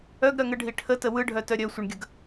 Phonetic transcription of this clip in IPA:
œ ɡ ɾ œ ŋ ə ɖʱ i ʈʰ ə t ə w ɯ ɖʱ œ t œ ɾʲ œ sʷ ə ɳ ɡʲ ə ɡ

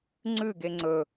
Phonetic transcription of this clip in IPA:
ŋ͡ǀ ʉ ɡ e ŋ͡ǀ ɵ

